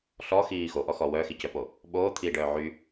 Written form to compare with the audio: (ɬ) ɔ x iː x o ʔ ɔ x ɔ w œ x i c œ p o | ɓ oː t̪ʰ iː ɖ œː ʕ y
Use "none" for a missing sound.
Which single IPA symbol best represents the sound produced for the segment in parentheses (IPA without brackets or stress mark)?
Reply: ɬ